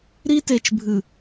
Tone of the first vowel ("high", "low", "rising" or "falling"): high